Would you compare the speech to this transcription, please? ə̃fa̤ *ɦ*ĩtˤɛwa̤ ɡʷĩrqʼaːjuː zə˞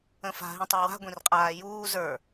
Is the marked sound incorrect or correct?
correct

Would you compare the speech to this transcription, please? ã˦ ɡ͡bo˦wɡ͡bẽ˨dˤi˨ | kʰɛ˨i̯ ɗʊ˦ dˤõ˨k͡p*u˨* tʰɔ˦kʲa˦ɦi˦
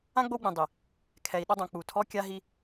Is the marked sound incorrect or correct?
correct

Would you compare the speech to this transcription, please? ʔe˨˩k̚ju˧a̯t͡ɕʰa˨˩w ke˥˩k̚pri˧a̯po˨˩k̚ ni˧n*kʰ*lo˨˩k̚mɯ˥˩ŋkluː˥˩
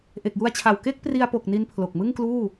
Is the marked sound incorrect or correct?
incorrect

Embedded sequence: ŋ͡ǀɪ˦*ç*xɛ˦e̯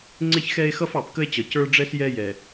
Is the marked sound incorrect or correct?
correct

